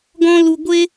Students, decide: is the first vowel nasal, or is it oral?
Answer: nasal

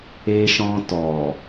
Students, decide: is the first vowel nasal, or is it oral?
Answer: oral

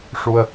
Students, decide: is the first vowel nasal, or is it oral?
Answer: oral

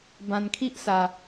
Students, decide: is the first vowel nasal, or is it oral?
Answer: nasal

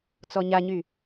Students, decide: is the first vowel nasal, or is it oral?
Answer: oral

